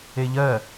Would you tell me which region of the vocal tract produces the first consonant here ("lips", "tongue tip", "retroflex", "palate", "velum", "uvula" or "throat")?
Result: palate